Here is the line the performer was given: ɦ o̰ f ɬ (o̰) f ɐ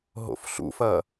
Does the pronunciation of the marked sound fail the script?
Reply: yes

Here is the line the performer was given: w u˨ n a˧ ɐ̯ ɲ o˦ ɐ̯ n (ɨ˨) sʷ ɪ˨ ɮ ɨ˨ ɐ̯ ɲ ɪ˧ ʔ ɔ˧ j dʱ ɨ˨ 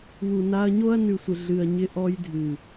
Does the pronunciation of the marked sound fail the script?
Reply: yes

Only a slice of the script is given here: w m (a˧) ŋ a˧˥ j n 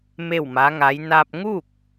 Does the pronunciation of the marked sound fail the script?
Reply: yes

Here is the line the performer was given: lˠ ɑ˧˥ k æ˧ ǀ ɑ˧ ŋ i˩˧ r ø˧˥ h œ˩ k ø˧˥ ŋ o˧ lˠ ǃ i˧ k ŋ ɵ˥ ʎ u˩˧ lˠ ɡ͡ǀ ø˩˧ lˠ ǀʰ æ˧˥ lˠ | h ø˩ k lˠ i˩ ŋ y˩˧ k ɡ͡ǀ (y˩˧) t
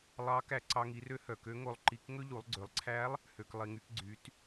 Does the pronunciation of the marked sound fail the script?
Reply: no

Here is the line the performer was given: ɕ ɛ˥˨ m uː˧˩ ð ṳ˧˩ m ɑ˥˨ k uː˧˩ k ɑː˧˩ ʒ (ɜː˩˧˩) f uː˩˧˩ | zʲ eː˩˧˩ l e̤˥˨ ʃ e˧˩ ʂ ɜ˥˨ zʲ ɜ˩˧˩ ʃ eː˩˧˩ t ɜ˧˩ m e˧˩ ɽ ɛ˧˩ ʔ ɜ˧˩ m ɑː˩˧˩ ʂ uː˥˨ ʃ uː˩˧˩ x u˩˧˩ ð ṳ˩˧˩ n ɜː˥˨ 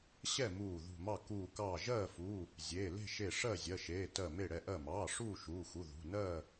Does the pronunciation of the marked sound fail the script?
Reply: yes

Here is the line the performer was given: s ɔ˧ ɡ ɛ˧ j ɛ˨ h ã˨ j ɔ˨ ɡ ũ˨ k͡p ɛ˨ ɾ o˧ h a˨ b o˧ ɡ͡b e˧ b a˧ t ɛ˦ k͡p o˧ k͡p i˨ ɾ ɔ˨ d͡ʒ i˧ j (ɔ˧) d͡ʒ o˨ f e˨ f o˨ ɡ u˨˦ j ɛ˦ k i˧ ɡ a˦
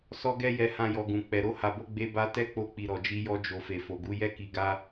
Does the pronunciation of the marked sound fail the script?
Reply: no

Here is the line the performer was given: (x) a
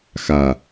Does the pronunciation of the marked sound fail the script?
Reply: no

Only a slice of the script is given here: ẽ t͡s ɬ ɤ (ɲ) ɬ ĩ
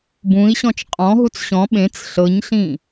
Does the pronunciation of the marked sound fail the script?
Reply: no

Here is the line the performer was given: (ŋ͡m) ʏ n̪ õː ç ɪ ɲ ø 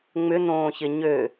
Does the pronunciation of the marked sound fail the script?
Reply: no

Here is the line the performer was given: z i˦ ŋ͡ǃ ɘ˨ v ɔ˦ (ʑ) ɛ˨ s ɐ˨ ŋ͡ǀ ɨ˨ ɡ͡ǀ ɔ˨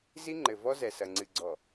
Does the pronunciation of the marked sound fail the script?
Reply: yes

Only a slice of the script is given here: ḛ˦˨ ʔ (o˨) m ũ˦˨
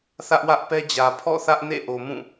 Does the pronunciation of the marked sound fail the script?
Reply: no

